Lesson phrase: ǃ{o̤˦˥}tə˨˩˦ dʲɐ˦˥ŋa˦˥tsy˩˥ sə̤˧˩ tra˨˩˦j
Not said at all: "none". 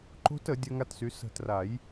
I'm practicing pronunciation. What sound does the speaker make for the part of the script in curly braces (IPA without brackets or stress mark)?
o̤˦˥